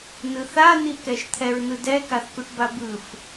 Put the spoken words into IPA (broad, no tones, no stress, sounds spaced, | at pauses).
n ɯ θ a n̪ i k ɛ ʃ t̪ʰ ɛ ɹ n ɯ d ɛ k a θ k u ʈ b a b ɯ f